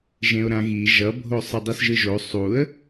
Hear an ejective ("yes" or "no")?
no